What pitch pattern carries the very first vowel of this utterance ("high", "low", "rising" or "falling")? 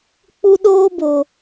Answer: high